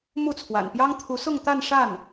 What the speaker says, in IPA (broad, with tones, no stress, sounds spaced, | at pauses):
m u˥˩ t͡sʰ w a̰˨˩ n p j ɑ˥ ŋ t̪ʰ u˧˥ s ʊ˥˧ ŋ t̪ a˥˧ n ʂ a˥˩ n